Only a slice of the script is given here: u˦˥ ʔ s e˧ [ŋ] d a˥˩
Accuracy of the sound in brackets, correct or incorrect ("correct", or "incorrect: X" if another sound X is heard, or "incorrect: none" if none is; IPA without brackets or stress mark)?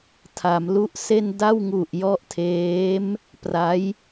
incorrect: n